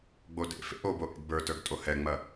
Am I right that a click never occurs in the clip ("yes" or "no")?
yes